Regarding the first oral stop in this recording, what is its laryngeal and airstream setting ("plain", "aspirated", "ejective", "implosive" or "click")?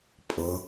ejective